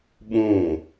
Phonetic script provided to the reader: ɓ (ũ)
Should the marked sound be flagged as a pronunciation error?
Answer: yes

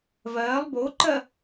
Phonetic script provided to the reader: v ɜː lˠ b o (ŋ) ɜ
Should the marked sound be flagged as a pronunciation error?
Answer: yes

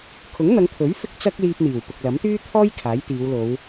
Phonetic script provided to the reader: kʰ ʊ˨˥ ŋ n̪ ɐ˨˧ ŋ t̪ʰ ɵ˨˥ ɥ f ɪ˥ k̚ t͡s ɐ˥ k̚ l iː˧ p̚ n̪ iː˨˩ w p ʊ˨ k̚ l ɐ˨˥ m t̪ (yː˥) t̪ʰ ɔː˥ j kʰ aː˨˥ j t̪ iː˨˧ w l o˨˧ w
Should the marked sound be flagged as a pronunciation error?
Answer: no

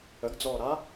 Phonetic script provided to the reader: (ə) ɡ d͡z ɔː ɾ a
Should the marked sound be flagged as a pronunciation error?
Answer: no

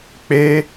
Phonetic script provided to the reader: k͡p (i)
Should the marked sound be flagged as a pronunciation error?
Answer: yes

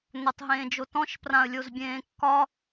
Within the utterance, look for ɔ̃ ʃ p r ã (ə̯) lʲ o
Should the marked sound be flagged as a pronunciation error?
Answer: no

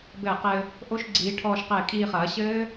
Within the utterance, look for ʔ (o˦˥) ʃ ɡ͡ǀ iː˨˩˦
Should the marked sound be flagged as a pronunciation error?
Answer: no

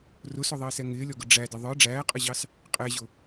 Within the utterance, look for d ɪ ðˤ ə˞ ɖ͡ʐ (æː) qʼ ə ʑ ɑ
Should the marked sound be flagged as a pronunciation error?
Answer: no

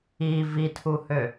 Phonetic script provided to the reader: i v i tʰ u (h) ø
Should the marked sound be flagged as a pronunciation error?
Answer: no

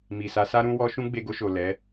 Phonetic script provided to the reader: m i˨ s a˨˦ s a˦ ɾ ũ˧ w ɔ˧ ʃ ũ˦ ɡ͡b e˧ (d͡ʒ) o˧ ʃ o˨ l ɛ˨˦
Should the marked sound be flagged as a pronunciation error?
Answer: yes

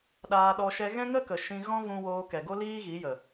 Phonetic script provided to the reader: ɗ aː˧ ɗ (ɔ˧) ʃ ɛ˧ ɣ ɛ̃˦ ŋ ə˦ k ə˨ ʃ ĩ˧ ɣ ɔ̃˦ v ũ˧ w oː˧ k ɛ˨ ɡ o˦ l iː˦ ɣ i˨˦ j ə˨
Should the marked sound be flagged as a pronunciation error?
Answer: no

